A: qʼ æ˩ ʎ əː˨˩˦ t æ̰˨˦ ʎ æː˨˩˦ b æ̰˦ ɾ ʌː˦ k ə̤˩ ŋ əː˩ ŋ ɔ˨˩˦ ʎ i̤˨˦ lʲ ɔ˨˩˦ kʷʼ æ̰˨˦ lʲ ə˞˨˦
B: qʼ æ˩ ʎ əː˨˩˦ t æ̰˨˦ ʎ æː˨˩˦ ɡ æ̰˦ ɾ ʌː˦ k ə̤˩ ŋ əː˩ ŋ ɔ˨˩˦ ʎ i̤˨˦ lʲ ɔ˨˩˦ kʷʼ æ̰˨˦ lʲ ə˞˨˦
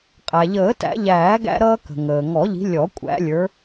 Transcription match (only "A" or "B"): B